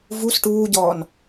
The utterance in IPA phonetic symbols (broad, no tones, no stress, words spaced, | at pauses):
vus ʈuːɟɔːn